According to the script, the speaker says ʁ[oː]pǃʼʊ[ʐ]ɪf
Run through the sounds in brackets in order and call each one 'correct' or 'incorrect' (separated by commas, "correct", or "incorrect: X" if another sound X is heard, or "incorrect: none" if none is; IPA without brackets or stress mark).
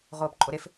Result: correct, incorrect: ɾ